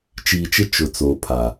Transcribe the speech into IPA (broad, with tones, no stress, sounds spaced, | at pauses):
t͡ʃ iː˨ t͡ʃ ɪ˦ t͡ʃ ʊ˨ t͡s o˨ pʰ a˨